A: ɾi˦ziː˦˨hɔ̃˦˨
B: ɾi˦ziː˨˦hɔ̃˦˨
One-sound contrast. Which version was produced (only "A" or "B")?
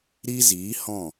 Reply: B